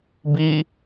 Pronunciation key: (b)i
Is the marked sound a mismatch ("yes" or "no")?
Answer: no